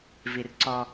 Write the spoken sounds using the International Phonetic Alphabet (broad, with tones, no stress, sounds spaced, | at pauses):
v i˨ r ǀ ɔ˦